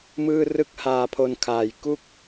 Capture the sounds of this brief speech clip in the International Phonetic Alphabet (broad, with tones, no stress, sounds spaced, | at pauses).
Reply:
m ɯː˥˩ r ɯ˥˩ k̚ h aː˧ pʰ o˧ n kʰ aː˨˩ j k u˥˩ k̚